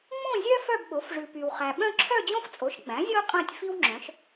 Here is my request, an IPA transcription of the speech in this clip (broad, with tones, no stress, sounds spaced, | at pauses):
ŋ͡m õ˥˧ zʲ œ˥ f œ˥˧ b ɓ o˩˥ f ʐ ʉ˨ p y˨ w χ æ˨ ɓ œ̃˥˧ ǁʰ œ˥˧ d͡ʑ õ˥ f t͡sʼ o˩˥ ʃ ɡ͡b æ̃˩˥ zʲ o˥ qʼ æ̃˥˧ tʲ f i˥ w ŋ͡ǁ œ̃˩˥ ʃ